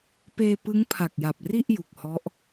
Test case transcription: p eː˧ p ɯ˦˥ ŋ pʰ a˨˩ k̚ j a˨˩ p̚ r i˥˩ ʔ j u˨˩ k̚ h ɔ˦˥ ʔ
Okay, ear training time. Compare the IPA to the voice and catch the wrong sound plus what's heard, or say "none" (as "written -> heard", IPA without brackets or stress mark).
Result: none